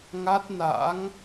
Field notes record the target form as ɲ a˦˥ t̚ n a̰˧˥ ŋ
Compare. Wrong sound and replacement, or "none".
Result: ɲ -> ŋ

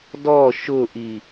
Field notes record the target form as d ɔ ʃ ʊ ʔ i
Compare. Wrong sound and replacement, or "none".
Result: none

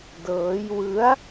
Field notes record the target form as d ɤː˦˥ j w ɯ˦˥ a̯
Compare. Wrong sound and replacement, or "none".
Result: none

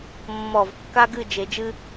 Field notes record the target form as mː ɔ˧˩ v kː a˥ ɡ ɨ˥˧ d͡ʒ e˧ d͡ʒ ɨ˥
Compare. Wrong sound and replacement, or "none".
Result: none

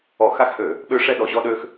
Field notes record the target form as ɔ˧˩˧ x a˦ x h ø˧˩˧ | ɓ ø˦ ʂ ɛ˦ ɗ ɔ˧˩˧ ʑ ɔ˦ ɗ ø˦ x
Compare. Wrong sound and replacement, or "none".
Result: none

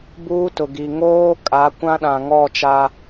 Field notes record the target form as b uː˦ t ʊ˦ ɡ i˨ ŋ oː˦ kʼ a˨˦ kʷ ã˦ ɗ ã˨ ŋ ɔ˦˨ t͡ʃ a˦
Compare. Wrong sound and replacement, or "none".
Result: ʊ˦ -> ʊ˨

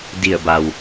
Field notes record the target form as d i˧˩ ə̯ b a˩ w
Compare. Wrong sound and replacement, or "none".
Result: none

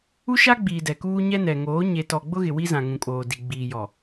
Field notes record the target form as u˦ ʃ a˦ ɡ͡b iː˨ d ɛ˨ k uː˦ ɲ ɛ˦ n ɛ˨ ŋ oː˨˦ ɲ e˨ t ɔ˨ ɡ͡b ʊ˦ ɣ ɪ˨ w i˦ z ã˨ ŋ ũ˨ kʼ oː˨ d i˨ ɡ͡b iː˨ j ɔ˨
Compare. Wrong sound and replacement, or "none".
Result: none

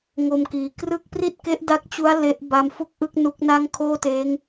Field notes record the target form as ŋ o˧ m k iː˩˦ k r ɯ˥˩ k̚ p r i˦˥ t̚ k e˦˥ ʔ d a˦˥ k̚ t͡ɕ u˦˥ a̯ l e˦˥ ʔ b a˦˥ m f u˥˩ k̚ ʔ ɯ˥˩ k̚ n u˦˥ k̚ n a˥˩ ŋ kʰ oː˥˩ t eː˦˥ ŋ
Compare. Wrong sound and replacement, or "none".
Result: i˦˥ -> i˥˩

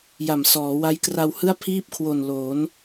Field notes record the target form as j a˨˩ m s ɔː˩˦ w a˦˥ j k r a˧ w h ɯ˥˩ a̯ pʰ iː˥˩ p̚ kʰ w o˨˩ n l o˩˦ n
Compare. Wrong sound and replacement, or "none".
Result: none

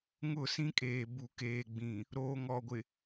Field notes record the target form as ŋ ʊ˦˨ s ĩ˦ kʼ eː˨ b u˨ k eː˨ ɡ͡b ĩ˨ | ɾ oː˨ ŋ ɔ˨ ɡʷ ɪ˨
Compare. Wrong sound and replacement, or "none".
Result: none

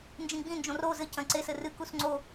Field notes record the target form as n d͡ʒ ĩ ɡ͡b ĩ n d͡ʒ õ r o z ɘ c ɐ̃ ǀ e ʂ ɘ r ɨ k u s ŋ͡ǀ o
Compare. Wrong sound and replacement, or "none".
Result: ʂ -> s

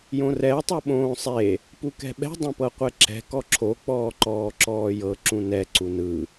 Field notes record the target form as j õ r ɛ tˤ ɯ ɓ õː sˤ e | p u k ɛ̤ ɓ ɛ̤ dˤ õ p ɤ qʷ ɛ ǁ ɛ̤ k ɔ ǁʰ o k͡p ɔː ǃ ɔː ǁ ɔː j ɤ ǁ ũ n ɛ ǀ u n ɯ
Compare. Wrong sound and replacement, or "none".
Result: none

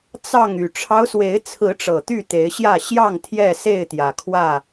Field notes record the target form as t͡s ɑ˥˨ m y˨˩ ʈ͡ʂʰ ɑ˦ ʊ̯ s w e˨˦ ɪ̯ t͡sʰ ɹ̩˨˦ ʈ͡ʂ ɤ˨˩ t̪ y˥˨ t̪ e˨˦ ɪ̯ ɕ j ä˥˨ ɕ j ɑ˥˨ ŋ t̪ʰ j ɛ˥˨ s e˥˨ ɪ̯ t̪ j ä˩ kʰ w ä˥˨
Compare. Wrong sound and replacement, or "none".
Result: m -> ŋ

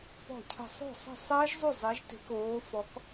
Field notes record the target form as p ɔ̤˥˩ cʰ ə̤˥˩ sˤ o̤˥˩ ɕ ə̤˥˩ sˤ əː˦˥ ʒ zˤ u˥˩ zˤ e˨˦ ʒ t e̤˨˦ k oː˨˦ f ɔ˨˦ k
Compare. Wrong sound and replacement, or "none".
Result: ɕ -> sˤ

